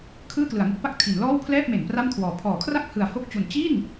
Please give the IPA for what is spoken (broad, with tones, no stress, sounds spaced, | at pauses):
kʰ ɯː˥˩ k l ɯ˩˦ a̯ ŋ u˦˥ k̚ p a˥˩ k̚ tʰ i˩˦ n l ɔː˥˩ w pʰ l ɛː˥˩ p̚ m e˩˦ n p r a˥˩ m kʰ w ɔː˨˩ pʰ ɔː˩˦ kʰ r a˥˩ k̚ h ɯ˨˩ a̯ h o˥˩ k̚ t͡ɕ u˨˩ n t͡ɕ i˥˩ n